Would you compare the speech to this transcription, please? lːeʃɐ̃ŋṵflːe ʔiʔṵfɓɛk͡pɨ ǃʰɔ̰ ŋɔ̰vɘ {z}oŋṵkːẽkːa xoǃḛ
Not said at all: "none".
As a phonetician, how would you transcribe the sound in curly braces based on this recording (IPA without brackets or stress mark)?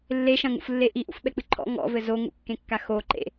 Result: z